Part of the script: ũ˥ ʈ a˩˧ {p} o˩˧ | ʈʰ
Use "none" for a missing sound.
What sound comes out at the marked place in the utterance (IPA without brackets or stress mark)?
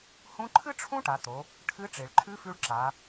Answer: t̪